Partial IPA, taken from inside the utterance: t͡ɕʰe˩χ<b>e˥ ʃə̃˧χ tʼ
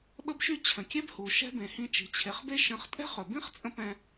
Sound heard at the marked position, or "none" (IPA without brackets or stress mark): b